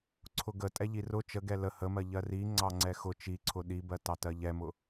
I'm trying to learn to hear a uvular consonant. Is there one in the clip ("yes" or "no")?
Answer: no